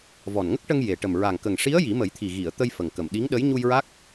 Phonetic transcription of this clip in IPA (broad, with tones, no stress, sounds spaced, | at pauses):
v ɔ˨˩ n ŋ ə˦˥ k̚ ʈ ə˧ ŋ j e˨˩ ʈ ə˨˩ m ɹ a˨˩ ŋ k ə˨˩ ŋ ʂ i˧˥ ə̯ j i˨˩˦ m ə˨˩˦ j t̪ʰ i˨˩ ɣ i˨˩˨ ə̯ t̪ ə˧ j f ə˨˩ ŋ k ə˨˩ m ɗ i˧˥ ŋ ɗ ə˧˥ j ɲ u˧ j ɹ a˦˥ k̚